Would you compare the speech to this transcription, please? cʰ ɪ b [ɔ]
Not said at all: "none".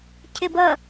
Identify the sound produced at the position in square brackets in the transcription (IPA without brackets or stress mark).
ʌ